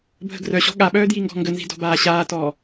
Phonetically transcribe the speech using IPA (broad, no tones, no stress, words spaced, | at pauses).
bʱə̤ɡrœɕɔ̤ ɠaɓœː djiŋɡɔ̤ŋɡənzi̤ dɔ̤baːɕaːtɔː